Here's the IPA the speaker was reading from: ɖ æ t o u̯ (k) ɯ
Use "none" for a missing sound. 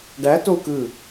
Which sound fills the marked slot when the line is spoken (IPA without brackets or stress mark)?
k